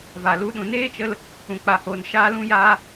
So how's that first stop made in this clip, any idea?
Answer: implosive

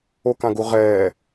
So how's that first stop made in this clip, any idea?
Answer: plain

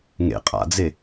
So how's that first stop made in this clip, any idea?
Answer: ejective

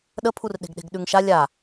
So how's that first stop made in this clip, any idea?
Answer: implosive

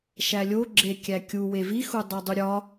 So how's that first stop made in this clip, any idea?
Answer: click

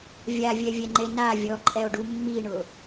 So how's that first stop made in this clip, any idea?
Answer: click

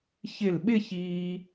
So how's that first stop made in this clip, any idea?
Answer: implosive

